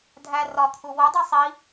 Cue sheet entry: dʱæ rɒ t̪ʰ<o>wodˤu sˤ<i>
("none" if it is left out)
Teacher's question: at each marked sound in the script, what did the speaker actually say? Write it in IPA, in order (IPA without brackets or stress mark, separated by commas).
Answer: u, i